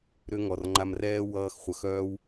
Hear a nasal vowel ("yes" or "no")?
no